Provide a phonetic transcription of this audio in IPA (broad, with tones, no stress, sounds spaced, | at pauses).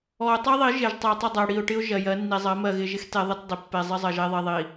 ɔ˨ ʊ̯ tˤ i˦ ðˤ i˨˦ ʒ e˨ ʒ tˤ ɪ˨ ə̯ tˤ ɪ˦˨ dˤ ɜ˨ ɽ i˨ ʊ̯ ʈ ɪ˦ ʊ̯ ʒ ɜ˨ j ɜ˨˦ nː i˨ zˤ ɜ˨˦ m ɜ˨ ɣ ɪ˨ ʒ ɪ˦ x t e˦ ðˤ ɪ˦ t dˤ ɪ˨ pː e˨ zˤ ɪ˦ zˤ ɜ˨ ʒ e˦ ðˤ i˨ ðˤ i˨